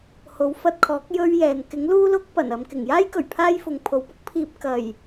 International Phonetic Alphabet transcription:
ho˨˥wfɐ˧t̚kʰɔː˨˥k̚ jɵ˥ɥjɛː˨n kɪ˨˥ŋ luː˥lʊ˥k̚ pɐ˨˩n ɐ˨mkɪ˨˩ŋjaː˥jkɵ˨˩ɥ pʰaː˥jfʊ˨ŋ pʰo˨wpʊ˥k̚pʰiː˧p̚ kɐ˨˩j

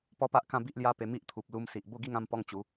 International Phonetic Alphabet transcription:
pɔ˦pa˦ʔkã˥˧ bi˦ʔlja˦pe˧ mi˦ʔt̪ʰu˨p̚ lu˧msi˨ʔ bo˥˧ɡi˥˧ŋã˥˧m pɔ˦ŋt͡ɕu˨˦

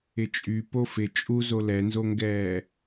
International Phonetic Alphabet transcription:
ɪt͡ʃʼy pofɪ t͡ʃʼuzo lɛnzoŋɡɛː

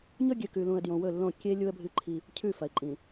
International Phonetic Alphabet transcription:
ɲɵ˦ɡʲɨ˨kʉ˨lũ˨ə̯ djõ˨wɵ˦˨lːõ˦˨ kʲe˦ lʲu˦ə̯bʱɨ˦ ǃʰi˦ | cʰʉ˦˨fɐ˨ɪ̯ǃʼĩ˨

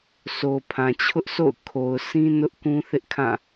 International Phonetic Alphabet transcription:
sʰo˨pʰã˨t͡ɕʰʊ˦ʔso̰˦˨ʊ̯ kʰo˨ʊ̯ sʰĩ˦ nʊ˦ʔkũ˦θɪ˦ʔkʰã˦˨

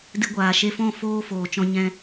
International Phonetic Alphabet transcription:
dɨ˧ɡʷaː˨ ʃe˧fɔ̃˦˨ foː˧ foː˨t͡ʃɔ̃˧ɲɛ̃˧

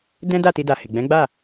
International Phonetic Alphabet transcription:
dɛ̃˦ da˦˨ti˧da˨ he˨ɡ͡bɛ̃˨˦ɡ͡ba˦˨

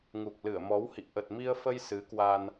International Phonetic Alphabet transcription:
ŋu˨˩k̚lɨ˧˩ə̯mɔ˨˦whḭ˧˨ ʔə˨˩t̚mi˧ə̯fə˧j sɨ˨˦kwa˧n

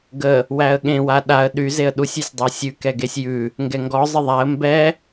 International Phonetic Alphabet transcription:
ɡə | wæə̯ɠẽwa ɗaə̯ ɗyzeə̯ ɗusʲʉsʲdˤæ sʲʉkɛɡesʲ jʉ | ŋɡɛŋɡɔ zˤəðˤæə̯ mbɛ

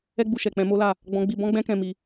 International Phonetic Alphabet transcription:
ɛ˦ɡ͡bu˧ʃɛ˨k͡pɛ̃˧ mo˦la˦˨ | ɡ͡bɔ̃˦ɡ͡bi˦ bɔ̃˦ɡ͡bɛ̃˦kɛ̃˧ mi˧

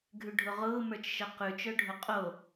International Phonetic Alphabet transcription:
ɡʱʉɖʱʊʁʊː mə˞t͡ʃʃəqʉ t͡ʃœɖʱʊqʼo

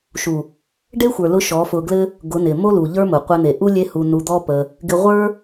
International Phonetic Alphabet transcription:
ʃu˨ | ɖe˦xʷə˞˨ lʊ˧ ʃɔ˨˦fʊ˧ɡlɘ˦ | ɡʊ˨˦nɪ˨ mo˦lu˨ʎə˞˦mʊ˨ qʷɘ˧n̪e˨ ʔu˦ lʲe˦hu˧nu˧d̪ɔ˦ pə˧ | ɡɪ˧ʁʷə˞˦

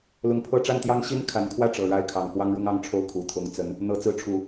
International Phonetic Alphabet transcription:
lʊ˧˥ŋpʰɤ˥˧ ʈ͡ʂa˥˩nt̪jɑ˥ŋ ɕi˥n kʰa˨˩nkʰwä˥˩ ʈ͡ʂɤ˨˩ɻa˥˩ɪ̯kʰɑ˨˩ŋ xwɑ˥ŋɻʊ˥ŋɑ˥ŋʈ͡ʂʰo˥˩ʊ̯ kʰu˨˩t̪ʰʊ˧˥ŋ t͡sə˧˥n | n̪ɤ˧˥t͡sɹ̩˧˥ʈ͡ʂʰu˨˩˦

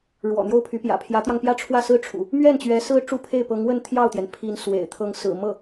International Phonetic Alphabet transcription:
ɻwɔ̰˨˩n̪jo˥˩ʊ̯pʰy˧˥pjä̰˨˩ pʰjä˧˥t̪jɑ˧ŋpjä˥˧ ʈ͡ʂʰwä˥˩sɹ̩˥ʈ͡ʂʰṵ˨˩˦ | mɥɛ˥˩nt͡ɕɥɛ˧˥ sɹ̩˥ ʈ͡ʂu˥˧pʰe˥˩ɪ̯ pɤ˧˥ŋwə˥˧n t̪ʰjɑ˥˩ʊ̯t̪jɛ˩npʰi˧˥n swḛ˨˩ɪ̯t̪ʰɤ˥ŋ sɹ̩˨˩mɤ˥˩

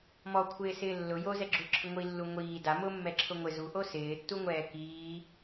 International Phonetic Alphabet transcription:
mɔ kʷʰɪːsɪːlːʊ jozɛɡ͡ǁu ǁʰɪŋʷilːu ŋʷiː da mʊmːɛǁʰʊ ŋʷɪ zuʔo sɪːtːuŋʷɛː kiː

